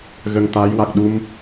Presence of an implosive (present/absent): present